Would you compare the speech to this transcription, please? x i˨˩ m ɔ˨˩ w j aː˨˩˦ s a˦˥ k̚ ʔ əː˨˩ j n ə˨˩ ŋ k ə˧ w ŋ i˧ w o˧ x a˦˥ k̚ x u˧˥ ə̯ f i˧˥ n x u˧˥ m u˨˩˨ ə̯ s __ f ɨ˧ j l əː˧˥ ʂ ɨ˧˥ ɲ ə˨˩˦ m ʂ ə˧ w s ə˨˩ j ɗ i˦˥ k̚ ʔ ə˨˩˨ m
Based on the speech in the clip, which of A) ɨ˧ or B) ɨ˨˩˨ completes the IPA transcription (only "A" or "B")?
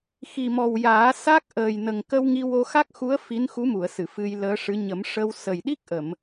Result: B